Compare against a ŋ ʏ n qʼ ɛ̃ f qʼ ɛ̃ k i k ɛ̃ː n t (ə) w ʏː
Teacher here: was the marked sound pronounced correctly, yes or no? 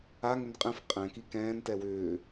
no